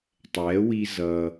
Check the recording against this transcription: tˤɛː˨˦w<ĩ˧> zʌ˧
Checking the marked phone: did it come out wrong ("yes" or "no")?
yes